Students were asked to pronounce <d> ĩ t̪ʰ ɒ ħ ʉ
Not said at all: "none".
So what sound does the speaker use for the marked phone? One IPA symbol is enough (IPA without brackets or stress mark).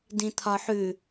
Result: d